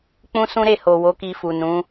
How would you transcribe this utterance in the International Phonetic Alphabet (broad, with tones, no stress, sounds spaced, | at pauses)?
k͡p ũ˦ s ũ˦ ɾ e˦˨ h o˨ w o˨˦ k i˧ f u˨ n ũ˨˦